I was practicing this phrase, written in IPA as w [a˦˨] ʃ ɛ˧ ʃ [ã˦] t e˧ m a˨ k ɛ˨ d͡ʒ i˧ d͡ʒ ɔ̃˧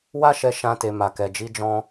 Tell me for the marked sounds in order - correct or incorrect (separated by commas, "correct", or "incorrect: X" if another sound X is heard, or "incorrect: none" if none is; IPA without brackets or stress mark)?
incorrect: a˦, correct